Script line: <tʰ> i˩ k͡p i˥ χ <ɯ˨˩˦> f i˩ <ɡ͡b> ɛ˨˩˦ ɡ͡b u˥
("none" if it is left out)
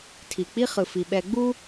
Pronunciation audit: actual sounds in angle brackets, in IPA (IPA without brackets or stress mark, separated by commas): tʰ, ɯ˩, ɓ